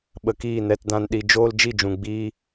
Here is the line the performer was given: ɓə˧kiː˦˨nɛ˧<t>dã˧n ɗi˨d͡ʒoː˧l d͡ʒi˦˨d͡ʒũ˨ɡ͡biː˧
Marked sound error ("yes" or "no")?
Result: no